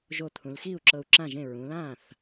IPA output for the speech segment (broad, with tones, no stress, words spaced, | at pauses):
ʒo˧˩t̪ʰũ˩˧lxiː˥˩u̯ ǁɤ˧˩u̯ǁã˥˩ʒẽ˥˩ ɹũ˩˧lãː˥˩θ